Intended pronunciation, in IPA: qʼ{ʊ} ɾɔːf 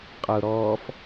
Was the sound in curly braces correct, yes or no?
yes